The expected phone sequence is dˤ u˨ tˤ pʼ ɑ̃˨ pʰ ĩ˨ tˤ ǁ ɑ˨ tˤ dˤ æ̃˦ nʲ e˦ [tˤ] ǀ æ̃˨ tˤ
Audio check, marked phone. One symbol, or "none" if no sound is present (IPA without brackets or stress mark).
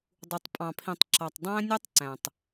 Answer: tˤ